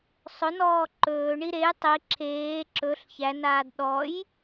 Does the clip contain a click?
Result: yes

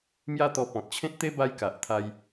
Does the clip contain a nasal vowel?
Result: yes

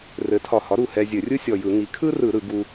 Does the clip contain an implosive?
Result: no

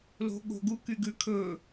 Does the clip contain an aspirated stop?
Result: yes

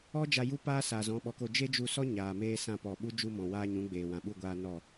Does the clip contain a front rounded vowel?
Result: no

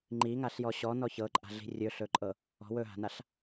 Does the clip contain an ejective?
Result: yes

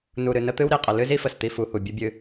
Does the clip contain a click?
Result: no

